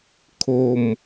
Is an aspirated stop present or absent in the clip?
present